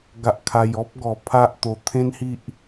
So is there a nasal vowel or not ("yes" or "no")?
yes